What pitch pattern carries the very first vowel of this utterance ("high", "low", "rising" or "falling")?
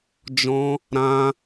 high